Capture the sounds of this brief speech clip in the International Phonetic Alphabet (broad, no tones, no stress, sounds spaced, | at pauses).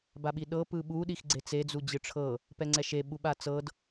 b a ɓ i ɗ ɤ p ɯ ɓ u ɗ i x ɡ͡ǀ e t͡s e d͡z u d͡ʑ ɯ ʈ͡ʂʰ ɤ | p ɛ ŋ͡ǀ ɛ ʃ e ɓ u ɓ a t͡s ɤ d